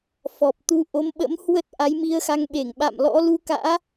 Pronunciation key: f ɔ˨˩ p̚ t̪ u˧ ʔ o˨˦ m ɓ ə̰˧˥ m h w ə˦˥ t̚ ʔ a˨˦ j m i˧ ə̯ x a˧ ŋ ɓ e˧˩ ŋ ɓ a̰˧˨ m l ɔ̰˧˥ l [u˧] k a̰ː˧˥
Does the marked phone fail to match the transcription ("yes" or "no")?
no